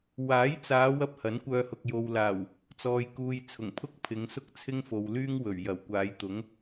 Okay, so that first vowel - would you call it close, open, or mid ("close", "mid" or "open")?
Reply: open